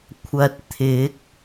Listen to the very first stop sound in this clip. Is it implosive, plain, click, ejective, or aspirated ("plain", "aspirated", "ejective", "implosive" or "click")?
aspirated